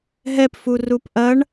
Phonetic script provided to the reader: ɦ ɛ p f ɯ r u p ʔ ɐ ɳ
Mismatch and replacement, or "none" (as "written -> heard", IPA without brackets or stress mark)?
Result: ɯ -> u